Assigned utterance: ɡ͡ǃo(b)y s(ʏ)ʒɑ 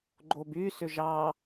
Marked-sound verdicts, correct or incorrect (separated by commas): correct, correct